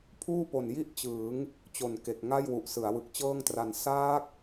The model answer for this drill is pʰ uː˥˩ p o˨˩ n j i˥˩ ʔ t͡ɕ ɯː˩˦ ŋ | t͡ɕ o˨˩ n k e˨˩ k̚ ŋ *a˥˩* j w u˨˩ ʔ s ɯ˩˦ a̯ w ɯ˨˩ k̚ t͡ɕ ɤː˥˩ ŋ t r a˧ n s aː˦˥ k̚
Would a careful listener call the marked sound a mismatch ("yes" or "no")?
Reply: no